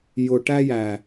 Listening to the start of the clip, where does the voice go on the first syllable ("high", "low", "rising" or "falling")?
low